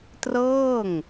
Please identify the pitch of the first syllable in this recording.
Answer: falling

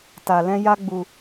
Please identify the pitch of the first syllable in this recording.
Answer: low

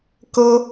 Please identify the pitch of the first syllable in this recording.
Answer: high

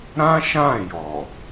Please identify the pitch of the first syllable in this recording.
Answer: high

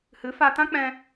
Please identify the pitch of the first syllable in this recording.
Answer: rising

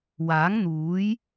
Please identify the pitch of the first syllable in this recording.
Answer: rising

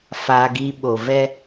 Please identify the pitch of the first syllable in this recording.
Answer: high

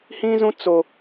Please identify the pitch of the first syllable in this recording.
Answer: high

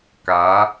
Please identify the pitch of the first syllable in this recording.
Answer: rising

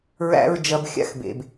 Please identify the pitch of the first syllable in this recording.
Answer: high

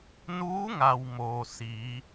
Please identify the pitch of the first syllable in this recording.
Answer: rising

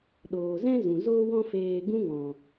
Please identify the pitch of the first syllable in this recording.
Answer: low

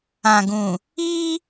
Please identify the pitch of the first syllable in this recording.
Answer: low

